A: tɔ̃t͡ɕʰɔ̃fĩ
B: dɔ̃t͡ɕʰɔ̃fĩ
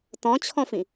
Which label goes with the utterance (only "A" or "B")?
A